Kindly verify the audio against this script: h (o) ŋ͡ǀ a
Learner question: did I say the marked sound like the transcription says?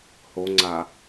yes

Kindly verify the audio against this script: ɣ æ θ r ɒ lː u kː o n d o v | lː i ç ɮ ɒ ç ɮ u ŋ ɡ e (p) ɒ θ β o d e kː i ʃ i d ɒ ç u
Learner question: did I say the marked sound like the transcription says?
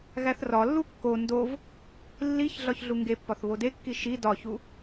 no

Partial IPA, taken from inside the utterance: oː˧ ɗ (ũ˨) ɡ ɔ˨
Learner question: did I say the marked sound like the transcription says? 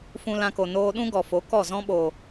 no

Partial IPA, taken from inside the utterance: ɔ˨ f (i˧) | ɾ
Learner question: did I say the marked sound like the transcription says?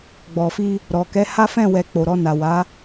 yes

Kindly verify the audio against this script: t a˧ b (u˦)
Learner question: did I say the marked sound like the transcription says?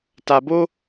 no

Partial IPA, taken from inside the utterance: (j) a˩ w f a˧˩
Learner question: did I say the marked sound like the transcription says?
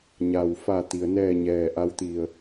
no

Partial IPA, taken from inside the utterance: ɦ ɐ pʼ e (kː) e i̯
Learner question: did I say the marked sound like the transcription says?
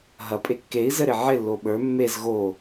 yes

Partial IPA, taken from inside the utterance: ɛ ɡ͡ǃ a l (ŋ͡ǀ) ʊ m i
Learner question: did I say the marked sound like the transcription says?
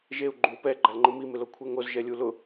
no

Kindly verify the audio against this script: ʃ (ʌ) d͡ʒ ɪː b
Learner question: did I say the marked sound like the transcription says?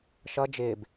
yes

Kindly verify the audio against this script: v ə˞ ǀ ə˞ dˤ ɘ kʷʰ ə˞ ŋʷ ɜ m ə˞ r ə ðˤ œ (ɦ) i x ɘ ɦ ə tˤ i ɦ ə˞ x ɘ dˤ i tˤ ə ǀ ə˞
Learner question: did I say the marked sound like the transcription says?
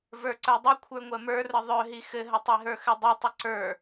yes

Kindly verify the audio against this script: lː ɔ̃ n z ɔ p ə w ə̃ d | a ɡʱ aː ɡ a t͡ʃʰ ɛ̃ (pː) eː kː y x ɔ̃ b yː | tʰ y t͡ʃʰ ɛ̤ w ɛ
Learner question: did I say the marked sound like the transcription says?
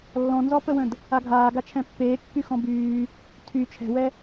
yes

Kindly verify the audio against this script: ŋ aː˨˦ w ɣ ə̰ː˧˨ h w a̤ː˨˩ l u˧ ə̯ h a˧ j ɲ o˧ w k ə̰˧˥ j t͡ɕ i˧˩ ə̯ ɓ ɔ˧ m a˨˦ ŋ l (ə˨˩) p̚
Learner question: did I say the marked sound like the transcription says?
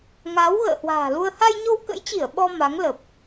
yes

